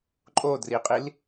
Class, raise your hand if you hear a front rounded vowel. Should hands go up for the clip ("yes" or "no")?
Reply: no